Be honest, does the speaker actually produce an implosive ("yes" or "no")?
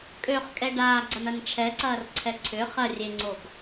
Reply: no